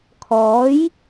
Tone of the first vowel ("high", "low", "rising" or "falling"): rising